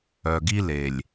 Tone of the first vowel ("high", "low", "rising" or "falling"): low